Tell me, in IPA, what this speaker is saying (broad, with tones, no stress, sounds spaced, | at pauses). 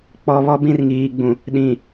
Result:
k͡p ɔ˨ β ɔ˦ b ĩ˦ r ŋ iː˨ ɡ͡b ũ˨ | ɗ ĩ˨